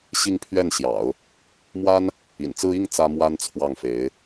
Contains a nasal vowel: no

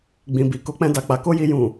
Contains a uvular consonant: no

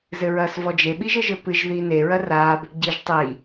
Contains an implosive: yes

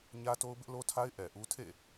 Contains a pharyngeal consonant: no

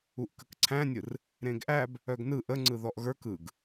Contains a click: yes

